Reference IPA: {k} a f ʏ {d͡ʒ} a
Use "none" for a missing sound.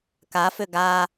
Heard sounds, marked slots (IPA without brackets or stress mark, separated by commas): k, ɡ